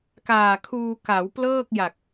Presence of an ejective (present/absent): absent